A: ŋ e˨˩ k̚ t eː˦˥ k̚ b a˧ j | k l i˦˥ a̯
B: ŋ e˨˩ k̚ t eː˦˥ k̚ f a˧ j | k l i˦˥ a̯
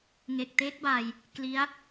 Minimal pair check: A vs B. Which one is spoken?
A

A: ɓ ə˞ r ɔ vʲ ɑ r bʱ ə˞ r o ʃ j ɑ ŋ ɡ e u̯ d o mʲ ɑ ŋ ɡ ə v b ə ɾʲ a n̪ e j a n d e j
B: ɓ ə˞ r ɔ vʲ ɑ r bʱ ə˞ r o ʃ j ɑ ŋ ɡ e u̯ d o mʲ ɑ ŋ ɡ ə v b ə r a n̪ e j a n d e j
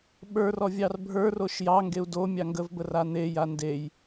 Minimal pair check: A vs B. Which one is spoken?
B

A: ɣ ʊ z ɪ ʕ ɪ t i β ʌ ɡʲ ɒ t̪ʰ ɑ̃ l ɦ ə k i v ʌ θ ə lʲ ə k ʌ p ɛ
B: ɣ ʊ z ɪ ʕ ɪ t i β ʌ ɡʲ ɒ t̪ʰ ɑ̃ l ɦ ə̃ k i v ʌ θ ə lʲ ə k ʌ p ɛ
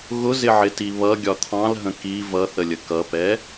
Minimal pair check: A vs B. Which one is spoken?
B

